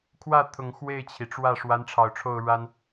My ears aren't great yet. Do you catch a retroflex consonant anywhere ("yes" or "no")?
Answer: yes